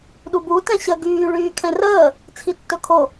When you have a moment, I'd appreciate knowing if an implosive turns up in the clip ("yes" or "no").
yes